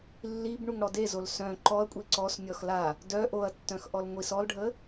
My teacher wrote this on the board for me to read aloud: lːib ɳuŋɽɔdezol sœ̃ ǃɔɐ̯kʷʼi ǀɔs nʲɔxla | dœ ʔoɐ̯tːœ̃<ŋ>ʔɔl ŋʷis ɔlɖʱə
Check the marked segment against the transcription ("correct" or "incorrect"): incorrect